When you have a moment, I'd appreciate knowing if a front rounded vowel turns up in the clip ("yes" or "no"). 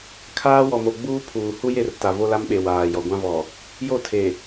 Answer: no